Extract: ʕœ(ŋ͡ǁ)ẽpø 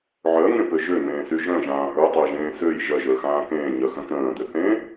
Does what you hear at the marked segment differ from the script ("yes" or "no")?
yes